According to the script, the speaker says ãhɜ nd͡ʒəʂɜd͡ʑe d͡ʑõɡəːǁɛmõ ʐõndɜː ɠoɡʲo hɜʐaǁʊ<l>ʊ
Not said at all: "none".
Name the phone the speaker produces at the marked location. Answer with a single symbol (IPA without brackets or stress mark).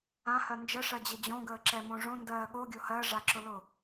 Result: l